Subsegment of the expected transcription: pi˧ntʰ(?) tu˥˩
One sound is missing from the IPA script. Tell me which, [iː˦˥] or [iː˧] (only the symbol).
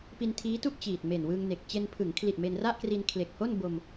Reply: iː˦˥